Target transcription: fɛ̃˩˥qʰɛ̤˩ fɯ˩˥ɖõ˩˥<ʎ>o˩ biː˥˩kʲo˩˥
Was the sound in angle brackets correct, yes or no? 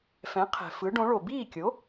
no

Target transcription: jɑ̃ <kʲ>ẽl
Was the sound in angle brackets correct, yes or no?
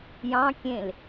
yes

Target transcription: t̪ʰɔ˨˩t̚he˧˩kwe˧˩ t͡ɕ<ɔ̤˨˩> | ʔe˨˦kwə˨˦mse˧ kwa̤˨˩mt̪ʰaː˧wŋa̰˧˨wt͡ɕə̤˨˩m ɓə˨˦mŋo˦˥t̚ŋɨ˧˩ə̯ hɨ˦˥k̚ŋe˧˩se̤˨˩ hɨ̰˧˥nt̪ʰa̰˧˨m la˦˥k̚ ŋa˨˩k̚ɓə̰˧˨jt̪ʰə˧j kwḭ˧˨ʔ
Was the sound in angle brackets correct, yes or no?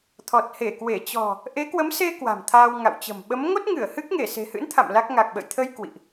yes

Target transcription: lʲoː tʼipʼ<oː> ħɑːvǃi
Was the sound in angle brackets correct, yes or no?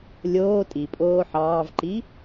yes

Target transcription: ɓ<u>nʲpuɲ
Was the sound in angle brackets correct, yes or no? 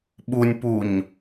yes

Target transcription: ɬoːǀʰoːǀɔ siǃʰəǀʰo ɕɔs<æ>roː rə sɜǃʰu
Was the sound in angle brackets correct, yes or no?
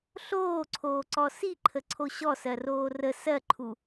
no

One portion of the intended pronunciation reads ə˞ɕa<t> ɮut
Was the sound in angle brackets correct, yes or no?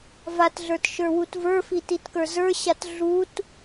yes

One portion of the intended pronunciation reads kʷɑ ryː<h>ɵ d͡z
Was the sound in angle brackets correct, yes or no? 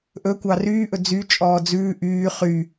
no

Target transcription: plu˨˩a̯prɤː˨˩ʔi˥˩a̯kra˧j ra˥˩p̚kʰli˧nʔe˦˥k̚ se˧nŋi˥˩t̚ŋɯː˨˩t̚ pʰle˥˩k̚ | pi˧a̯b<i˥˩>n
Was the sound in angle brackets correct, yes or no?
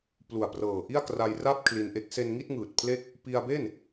no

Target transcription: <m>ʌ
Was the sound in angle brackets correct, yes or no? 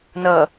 no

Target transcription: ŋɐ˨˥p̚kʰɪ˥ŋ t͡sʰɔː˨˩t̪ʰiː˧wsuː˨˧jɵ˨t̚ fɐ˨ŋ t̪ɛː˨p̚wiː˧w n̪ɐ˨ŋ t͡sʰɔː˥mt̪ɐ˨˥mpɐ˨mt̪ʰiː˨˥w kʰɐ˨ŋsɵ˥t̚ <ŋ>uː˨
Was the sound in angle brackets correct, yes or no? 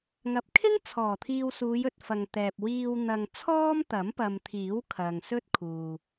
no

